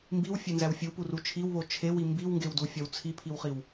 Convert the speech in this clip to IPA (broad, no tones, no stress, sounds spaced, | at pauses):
m b i w fʲ e n z æ w fʲ u p u r u t͡ʃʰ i w β o t͡ʃʰ e w i m b i w ŋ ɡ e w d u fʲ ɒ w t͡sʰ i pʰ i w χ i w